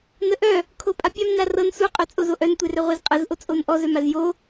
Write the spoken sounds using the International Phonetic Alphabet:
n ə ʔ œ | kʰ o pʼ a pʲ a m n a r ɤ n s u qʼ œ t͡sʼ o z o ʔ œ n tʷ e r œ ʁʷ e z qʼ ə z ʔ o t͡sʼ o n ʔ ɔ z œ m a z j o

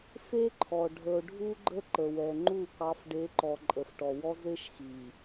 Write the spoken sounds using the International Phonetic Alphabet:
f e˦ ǃʰ ɔ˨ ɖʱ ə˨ o̯ ɖʱ u˦ ɡ͡ǃ ə˦ ǃ ə˨ w ɛ˨ ŋ͡ǃ u˦˨ k ɑ˨˦ f ɖ e˨˦ ǃ ɔ˨ ǃʼ ə˨ f ʈ ɔ˨ w ɔ˦ z e˦ ʃ x i˨

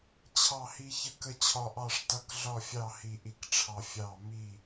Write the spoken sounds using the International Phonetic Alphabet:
t͡ɕʰ ɑ˥˨ h i˦ ç ə˦ k ə˥˨ t͡ɕʰ ɒ˦ ʔ ɑ˥˨ ʂ t ʌ˦ k ɮ ɒ˥˨ fʲ ɑ˥˨ h i˦ ʔ i˦ k ʈ͡ʂʰ ɑ˦ fʲ ɑ˥˨ m i˥˨

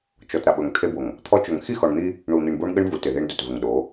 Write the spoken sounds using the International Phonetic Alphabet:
t͡ʃ ɔ˨ t ɾ a˨ ɓ ɵ˨ ŋ t̪ʰ e˦ b o˨ ŋ | t̪ʰ ɔ˦ t͡ʃ ɵ˨ ŋ x i˦˨ x ɔ˨ ɳ n̪ i˦ | ɳ u˨ n̪ i˨ ɳ b o˦ ɳ ɠ ɘ˦ ɳ v u˨ t ɪ˨ ð e˦ ɳ d ɵ˨ t v ɘ˨ ŋ ɗ o˨˦

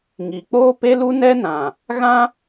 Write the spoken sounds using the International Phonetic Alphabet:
ŋ i˨ k͡p oː˦ p e˦ l u˦ n ɛ˦ n ã˨ | ɣ ã˦

